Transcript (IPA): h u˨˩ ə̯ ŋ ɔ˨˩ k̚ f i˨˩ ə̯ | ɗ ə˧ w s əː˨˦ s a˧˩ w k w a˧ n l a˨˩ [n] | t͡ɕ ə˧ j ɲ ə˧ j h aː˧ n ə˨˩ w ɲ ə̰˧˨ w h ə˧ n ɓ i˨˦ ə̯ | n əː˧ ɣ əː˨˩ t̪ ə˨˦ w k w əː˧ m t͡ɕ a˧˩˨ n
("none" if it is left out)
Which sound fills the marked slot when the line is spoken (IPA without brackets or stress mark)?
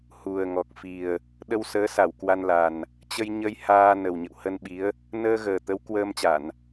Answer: n